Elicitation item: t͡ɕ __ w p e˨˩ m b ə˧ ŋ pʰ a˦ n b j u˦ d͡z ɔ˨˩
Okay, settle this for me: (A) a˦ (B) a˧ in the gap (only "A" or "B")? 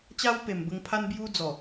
A